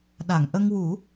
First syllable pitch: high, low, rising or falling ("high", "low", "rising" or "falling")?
low